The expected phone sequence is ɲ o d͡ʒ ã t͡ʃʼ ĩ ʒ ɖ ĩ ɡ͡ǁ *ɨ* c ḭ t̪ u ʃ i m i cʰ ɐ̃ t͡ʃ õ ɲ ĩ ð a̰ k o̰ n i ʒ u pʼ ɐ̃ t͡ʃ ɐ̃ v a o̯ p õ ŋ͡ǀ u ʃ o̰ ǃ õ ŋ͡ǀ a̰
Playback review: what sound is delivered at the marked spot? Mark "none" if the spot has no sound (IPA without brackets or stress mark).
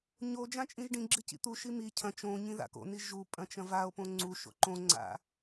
ɨ